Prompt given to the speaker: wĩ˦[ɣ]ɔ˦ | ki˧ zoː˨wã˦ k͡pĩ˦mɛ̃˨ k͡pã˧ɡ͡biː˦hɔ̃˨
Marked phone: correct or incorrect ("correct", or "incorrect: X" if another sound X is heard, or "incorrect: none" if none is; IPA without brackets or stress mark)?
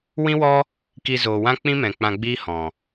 incorrect: w